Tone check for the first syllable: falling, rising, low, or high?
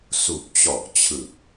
low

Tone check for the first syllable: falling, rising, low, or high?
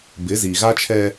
rising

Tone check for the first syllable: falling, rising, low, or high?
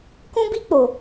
high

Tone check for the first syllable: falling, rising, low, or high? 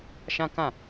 high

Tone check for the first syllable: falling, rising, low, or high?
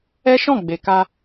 high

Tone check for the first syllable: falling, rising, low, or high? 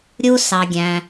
high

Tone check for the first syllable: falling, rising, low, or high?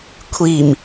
low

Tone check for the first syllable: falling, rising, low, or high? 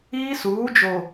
high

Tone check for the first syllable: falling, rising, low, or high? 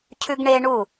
high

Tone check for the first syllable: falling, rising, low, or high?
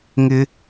high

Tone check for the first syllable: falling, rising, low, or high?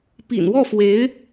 low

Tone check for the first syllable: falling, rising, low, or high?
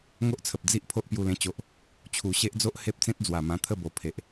high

